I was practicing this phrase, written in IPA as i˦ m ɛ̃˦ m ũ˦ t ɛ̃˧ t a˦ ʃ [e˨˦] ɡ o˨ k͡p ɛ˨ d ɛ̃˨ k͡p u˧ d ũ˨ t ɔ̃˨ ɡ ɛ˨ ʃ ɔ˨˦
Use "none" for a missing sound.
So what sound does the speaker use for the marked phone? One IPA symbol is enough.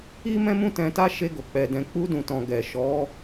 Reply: e˧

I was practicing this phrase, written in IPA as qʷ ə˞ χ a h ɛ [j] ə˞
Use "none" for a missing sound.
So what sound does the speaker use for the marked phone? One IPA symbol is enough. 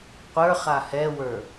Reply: w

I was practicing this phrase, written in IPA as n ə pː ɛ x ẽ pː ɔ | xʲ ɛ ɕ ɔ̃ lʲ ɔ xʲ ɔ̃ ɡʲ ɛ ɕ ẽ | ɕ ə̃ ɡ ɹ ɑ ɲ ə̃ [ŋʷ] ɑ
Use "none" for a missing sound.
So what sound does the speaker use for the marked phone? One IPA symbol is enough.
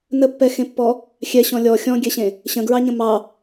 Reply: m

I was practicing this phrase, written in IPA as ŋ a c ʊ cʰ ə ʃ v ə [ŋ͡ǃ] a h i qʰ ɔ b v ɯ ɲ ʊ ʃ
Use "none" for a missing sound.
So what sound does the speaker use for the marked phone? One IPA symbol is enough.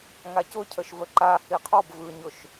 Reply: ǃ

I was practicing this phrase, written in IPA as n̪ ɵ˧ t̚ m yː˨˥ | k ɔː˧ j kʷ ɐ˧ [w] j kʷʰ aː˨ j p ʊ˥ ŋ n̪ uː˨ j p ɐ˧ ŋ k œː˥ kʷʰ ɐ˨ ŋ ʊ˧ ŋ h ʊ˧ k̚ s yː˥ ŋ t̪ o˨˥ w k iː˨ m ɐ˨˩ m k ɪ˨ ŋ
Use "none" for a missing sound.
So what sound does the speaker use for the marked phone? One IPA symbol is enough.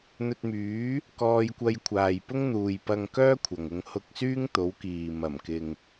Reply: none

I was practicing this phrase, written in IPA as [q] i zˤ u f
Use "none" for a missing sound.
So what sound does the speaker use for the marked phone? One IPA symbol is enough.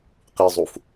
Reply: q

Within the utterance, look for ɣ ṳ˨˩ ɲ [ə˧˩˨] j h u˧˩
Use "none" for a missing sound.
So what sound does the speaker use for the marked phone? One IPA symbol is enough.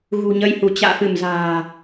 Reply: ə˧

